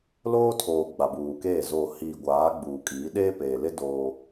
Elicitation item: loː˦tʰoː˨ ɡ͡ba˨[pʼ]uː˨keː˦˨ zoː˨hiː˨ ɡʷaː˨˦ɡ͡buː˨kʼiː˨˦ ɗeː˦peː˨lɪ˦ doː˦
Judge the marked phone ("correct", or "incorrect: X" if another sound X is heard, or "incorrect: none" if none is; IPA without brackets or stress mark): incorrect: b